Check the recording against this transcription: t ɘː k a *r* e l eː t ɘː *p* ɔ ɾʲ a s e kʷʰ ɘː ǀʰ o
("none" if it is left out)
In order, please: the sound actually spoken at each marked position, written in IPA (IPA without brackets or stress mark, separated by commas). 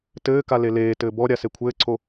l, b